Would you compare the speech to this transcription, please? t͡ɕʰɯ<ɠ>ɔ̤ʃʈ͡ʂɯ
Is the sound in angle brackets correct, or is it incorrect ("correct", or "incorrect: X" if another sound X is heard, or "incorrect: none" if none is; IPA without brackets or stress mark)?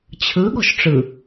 correct